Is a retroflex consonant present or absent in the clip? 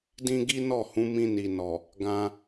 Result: absent